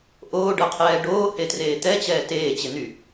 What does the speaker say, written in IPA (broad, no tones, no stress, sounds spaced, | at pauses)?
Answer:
ʔ oː ɖ ɤ qʰ ɛː ɖ oː h e t r eː t̪ ɛ t͡ɕ ɛː t eː t͡ɕ e n̪ y